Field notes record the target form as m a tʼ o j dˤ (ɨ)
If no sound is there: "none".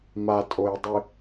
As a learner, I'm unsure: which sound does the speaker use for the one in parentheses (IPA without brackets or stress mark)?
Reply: ɨ